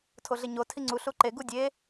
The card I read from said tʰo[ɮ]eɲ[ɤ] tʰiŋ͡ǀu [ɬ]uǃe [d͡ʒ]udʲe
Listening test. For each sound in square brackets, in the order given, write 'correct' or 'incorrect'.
correct, incorrect, correct, incorrect

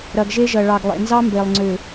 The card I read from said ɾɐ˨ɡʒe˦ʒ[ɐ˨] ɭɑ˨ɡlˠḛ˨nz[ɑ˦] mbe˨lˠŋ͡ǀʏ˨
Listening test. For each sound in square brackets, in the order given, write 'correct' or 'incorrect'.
correct, correct

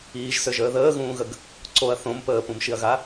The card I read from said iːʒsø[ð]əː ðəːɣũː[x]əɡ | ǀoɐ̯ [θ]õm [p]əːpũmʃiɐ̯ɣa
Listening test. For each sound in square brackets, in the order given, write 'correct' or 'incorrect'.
incorrect, incorrect, correct, correct

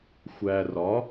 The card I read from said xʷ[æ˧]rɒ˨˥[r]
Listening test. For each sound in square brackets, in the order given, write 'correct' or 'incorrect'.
correct, incorrect

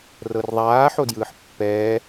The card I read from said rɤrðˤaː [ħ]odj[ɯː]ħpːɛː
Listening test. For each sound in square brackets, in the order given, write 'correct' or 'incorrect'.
correct, correct

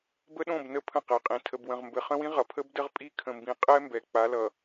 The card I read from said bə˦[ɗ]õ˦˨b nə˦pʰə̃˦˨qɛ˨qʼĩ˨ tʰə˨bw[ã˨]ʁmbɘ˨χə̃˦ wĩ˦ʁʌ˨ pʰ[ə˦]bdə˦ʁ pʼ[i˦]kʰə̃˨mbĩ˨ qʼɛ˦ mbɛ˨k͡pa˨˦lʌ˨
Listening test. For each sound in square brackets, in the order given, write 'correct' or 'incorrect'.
correct, incorrect, correct, correct

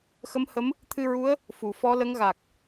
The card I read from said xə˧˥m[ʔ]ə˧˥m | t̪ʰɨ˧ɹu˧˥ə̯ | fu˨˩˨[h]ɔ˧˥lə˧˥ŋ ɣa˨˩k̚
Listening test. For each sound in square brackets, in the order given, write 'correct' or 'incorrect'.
incorrect, incorrect

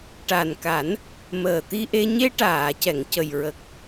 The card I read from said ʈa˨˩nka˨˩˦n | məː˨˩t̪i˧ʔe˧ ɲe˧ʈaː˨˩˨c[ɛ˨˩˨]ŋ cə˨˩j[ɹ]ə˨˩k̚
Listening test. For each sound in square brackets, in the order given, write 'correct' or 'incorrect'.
correct, correct

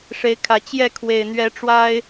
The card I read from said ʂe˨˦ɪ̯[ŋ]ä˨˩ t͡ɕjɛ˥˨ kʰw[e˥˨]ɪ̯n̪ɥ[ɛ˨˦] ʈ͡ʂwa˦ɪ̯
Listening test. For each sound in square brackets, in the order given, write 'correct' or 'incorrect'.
incorrect, incorrect, correct

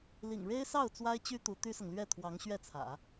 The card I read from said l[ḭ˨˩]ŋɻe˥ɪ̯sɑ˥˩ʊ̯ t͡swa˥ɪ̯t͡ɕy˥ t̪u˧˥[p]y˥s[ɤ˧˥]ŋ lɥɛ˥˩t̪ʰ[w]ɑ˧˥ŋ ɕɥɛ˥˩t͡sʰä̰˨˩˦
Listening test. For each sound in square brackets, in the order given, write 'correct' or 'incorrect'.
correct, incorrect, incorrect, correct

